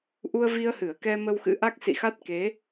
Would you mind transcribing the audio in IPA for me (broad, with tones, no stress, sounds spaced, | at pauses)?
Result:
ʔ u˧ ə̯ v i˧ ə̯ h ɨ˧˩ ə̯ k ɛ˧ m ə˧ w x ɨ̰˧˥ ʔ a˦˥ k̚ s ḭ˧˨ x a˦˥ t̚ k e˨˦